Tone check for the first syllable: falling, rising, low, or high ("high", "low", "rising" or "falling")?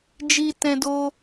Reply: high